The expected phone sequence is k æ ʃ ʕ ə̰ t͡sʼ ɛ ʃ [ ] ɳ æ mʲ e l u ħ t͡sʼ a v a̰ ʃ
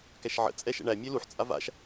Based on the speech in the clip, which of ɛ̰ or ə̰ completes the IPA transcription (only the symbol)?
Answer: ɛ̰